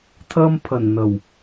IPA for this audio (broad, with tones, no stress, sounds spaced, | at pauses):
t̪ʰ ɐ˥ m pʰ ɐ˨˩ n n̪ ɐ˨˩ w